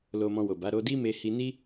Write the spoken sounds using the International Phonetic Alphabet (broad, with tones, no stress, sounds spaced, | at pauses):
l o˧ m ɔ̃˧ w o˨ b a˨˦ ɾ o˧ d i˦ m e˧ h i˧ n i˦